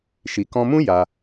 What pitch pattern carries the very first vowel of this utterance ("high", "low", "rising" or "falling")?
low